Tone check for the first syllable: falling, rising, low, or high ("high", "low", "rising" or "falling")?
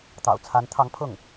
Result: low